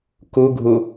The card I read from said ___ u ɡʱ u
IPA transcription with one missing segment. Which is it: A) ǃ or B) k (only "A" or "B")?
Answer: B